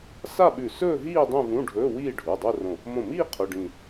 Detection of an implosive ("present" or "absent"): present